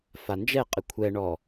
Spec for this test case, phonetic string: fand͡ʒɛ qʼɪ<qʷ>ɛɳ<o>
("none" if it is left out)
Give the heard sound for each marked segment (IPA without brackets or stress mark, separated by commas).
kʷʰ, ɔ